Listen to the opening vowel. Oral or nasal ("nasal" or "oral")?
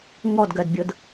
oral